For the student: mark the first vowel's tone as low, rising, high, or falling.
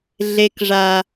low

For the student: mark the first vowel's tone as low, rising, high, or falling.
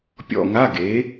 falling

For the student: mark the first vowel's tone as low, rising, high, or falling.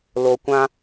low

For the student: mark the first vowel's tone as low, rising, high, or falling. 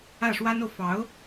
falling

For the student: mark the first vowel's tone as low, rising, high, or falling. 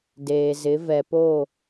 low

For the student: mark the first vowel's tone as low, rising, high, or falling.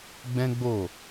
high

